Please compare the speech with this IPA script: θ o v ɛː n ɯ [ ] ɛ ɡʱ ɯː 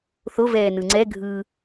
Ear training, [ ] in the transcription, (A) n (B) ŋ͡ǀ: B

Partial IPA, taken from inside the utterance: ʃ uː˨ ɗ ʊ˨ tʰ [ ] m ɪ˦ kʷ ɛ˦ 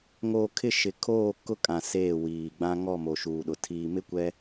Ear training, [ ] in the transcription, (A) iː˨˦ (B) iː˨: B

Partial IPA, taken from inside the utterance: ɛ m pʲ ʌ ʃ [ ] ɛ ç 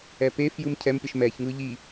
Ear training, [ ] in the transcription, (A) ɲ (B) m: B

